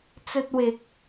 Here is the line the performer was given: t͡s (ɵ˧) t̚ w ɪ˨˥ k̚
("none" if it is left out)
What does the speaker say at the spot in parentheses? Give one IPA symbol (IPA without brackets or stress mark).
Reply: ɵ˧